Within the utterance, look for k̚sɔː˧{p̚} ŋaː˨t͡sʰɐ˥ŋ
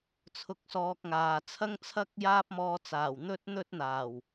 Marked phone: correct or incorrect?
incorrect: k̚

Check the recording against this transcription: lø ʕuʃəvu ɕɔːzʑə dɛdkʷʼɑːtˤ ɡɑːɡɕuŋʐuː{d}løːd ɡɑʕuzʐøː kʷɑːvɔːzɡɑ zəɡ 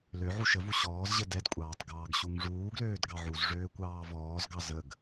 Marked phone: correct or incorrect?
incorrect: ɡ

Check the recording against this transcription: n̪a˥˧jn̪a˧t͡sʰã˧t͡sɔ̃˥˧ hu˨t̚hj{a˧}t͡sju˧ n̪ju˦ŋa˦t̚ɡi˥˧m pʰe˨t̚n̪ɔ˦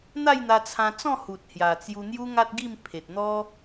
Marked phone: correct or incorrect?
incorrect: a˨˩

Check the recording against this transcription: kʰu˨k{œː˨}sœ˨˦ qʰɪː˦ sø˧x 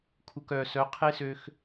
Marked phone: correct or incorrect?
correct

